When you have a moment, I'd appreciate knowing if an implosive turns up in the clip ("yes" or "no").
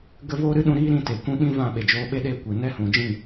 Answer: yes